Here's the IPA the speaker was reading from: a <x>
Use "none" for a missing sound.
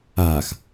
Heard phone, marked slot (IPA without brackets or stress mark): x